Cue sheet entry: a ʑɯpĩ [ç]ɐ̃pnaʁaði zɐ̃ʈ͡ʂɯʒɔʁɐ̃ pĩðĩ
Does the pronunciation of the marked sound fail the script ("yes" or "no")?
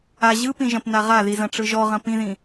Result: yes